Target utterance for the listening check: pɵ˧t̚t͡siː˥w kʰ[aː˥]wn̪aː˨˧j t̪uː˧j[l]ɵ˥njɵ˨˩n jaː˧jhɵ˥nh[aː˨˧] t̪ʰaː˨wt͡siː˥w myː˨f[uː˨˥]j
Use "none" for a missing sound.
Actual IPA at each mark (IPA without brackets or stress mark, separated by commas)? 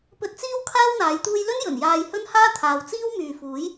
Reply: aː˥, l, aː˥, uː˨˥